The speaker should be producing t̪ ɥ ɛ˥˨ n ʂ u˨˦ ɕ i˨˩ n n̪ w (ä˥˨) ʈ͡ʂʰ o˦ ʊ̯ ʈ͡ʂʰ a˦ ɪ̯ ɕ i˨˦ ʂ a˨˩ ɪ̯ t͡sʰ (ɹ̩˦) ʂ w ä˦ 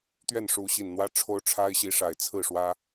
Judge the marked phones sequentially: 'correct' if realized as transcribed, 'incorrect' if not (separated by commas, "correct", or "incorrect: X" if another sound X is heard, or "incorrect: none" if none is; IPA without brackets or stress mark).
incorrect: ä˦, incorrect: ɹ̩˥˨